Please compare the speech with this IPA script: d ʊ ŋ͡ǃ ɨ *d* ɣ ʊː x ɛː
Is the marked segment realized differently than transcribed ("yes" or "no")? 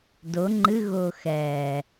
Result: yes